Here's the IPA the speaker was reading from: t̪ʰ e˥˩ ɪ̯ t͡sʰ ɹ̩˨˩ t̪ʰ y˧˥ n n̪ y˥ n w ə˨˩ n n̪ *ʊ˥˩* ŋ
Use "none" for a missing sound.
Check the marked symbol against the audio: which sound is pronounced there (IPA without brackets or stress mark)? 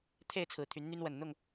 ʊ˥˩